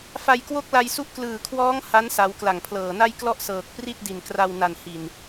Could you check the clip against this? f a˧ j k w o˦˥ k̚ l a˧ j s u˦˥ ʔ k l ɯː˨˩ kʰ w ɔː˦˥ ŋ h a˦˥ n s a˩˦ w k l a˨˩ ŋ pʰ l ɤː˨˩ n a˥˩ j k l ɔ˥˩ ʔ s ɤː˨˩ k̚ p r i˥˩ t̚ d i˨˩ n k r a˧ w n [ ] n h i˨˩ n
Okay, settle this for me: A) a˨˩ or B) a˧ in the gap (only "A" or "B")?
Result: A